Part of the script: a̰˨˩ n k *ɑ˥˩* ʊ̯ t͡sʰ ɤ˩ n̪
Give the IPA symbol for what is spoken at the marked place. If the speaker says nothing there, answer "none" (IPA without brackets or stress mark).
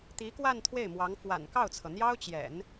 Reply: ɑ˥˩